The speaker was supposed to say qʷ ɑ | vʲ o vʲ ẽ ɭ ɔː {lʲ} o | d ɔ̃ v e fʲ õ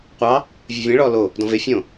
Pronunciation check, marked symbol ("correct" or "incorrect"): incorrect